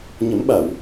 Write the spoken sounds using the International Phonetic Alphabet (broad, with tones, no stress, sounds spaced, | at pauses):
ɲ ə˨˩˦ m ɓ a˨˩˨ w